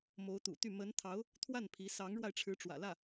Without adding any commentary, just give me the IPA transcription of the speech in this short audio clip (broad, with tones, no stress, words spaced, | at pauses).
mo˧˥ʊ̯t̪ṵ˨˩t̪y˥˩ mə˧˥nt̪ʰɑ˧˥ʊ̯ | t̪ʰwa˥˩n pʰi˧˥ sɑ˧˥ŋɻwa˧ɪ̯ʈ͡ʂʰɻ̩˧˥ ʈ͡ʂwä̰˨˩lä˥˩